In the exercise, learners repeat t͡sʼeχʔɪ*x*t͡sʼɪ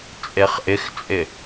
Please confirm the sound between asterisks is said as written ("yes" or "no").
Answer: yes